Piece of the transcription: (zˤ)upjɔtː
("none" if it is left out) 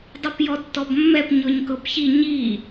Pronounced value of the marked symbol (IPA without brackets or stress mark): dˤ